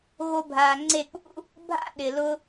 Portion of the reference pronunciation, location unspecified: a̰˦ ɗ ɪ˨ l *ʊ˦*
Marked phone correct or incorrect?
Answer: correct